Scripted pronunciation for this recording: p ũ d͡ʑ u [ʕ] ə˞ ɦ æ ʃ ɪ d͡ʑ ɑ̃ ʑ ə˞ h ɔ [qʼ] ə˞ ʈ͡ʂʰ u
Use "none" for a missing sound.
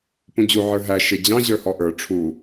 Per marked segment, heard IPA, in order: ʕ, ʔ

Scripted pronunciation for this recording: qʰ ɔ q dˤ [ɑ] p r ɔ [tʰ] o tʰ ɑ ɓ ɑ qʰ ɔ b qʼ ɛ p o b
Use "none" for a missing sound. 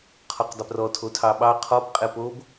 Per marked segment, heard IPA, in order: ə, tʰ

